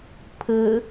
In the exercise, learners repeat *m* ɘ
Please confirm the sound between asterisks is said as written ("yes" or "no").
no